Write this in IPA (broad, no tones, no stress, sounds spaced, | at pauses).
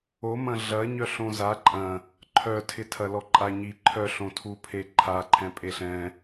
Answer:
o m ɐ̃ ɮ ɐ ɲ œ ɬ õ z a ǃʼ ɐ̃ | ǃʰ œ tʰ ɪ tʰ ɐ l ɔ ǃʼ a ɲ i ǃʰ œ ɬ õ tʰ u pʰ e ǃʰ a ǃʰ ɛ̃ pʼ e ɬ ɛ̃